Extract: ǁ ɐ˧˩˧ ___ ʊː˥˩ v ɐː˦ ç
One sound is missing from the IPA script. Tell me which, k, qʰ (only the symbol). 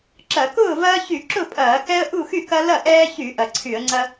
k